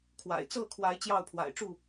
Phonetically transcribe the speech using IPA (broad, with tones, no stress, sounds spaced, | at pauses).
kʰ w a̰˨˩ ɪ̯ t͡s ɤ˥˨ kʰ w a˨˦ ɪ̯ t͡ɕ j ɑ˥˨ ʊ̯ pʰ w a̰˨˩ ɪ̯ ʈ͡ʂ u˥˨